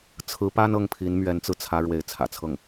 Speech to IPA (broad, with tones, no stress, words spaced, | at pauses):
t͡sʰɹ̩˧˥pa˥n ɤ˥˩ŋpʰi˧˥n mɥɛ˧˥nt͡sɹ̩˧t͡sʰä˧˥ ɻwe˧˥ɪ̯t͡sʰä̰˨˩t͡sʰɤ˥˩ŋ